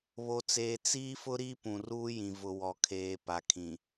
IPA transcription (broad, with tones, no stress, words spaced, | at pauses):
βo˨t͡seː˨ t͡siː˦fʊ˦ ɾi˦ pũ˨ruː˦jĩ˨ vʊ˨wɔ˨kʰeː˨ pa˨kʰĩ˨